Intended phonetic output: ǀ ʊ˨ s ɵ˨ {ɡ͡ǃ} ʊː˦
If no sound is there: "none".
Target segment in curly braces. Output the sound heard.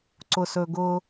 ɡ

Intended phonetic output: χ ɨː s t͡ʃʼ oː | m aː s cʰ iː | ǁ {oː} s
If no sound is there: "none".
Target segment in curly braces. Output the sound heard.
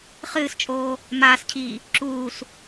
uː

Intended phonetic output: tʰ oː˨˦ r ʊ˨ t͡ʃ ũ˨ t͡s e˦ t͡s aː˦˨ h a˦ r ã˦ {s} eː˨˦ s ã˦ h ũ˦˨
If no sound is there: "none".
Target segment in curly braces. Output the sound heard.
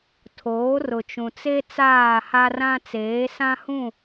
t͡s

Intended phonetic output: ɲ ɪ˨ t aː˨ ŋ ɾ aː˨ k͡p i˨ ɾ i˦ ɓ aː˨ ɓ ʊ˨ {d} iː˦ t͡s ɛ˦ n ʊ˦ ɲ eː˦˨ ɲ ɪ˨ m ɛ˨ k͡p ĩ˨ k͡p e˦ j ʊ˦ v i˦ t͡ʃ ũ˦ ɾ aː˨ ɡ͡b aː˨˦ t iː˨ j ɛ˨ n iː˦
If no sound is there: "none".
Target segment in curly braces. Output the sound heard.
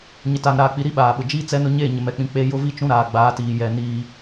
d͡ʒ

